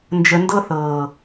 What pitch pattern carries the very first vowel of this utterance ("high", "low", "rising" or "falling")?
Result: low